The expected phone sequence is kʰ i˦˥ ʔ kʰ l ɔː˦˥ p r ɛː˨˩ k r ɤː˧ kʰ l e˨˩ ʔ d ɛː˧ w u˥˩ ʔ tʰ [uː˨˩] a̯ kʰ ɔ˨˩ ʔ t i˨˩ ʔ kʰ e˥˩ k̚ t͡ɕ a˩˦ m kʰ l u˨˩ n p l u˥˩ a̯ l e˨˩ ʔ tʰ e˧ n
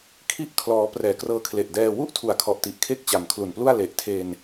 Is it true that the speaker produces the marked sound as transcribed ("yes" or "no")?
no